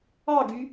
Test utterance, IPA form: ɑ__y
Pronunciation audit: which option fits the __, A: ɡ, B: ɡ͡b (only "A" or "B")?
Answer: A